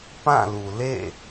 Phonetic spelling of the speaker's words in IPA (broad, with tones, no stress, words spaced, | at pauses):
pã˦˨lu˨lḛ˦˨